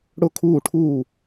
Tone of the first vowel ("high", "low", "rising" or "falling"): falling